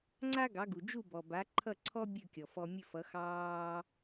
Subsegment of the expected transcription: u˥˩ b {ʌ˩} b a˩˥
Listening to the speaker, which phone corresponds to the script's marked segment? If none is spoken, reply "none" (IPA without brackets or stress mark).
ɔ˩